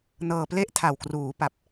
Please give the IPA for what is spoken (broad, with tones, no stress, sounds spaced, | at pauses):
n ɤː˧ p l e˥˩ ʔ tʰ a˨˩ w k r uː˩˦ p a˨˩ p̚